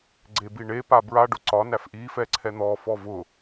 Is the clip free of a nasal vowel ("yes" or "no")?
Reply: yes